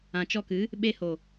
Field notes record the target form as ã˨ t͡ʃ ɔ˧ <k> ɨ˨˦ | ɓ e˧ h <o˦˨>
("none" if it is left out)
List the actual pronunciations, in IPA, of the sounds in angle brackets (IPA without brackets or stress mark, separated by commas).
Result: k, o˨